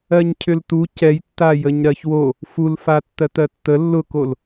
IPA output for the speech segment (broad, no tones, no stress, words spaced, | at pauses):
ɜɲcʰʏltu cɛj tːajəɲɾɜçwo | fulfa tːɜtɜtːə lːʊkol